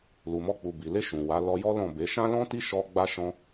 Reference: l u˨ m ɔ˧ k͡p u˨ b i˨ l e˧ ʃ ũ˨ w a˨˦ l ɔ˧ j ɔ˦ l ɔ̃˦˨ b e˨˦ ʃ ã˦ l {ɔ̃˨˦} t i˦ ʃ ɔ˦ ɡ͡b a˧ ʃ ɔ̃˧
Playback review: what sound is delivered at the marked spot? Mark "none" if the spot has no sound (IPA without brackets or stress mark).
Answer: ɔ̃˦